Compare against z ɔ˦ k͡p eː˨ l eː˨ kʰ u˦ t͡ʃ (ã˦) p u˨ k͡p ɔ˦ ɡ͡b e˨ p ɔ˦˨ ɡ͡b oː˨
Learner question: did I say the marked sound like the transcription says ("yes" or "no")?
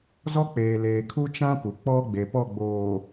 yes